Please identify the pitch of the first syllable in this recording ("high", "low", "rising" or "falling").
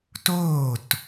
falling